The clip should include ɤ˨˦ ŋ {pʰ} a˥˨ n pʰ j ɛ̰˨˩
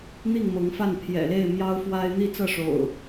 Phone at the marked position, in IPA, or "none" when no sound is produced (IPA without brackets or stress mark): f